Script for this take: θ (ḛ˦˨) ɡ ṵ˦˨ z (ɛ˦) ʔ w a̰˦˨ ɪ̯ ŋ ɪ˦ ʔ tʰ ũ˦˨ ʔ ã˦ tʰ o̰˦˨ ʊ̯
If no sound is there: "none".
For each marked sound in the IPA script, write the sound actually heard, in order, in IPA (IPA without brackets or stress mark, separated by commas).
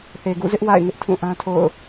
e˨, ɪ˦